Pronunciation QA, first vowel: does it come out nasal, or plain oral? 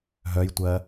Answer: oral